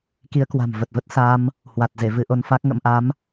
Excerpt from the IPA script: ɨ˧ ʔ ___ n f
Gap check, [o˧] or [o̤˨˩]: o˧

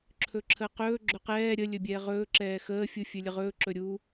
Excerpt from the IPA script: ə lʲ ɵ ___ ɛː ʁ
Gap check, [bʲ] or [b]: bʲ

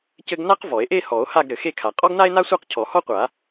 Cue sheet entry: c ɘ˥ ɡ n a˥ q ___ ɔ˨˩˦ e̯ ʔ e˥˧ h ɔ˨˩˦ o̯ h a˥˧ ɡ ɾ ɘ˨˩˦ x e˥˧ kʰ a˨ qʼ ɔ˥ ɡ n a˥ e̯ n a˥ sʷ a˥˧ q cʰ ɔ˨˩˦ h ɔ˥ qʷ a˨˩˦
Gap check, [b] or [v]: v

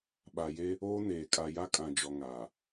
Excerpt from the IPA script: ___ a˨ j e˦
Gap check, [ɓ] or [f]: ɓ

